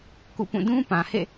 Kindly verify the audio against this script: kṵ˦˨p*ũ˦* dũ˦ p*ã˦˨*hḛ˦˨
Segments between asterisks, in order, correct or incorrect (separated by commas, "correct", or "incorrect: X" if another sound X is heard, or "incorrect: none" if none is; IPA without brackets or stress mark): incorrect: ũ˦˨, incorrect: ã˨